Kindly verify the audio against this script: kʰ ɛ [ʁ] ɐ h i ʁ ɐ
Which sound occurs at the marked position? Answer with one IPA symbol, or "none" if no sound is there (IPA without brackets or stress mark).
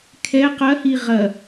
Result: q